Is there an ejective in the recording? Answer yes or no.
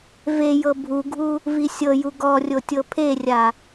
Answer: no